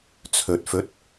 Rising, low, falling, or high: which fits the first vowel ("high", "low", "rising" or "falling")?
low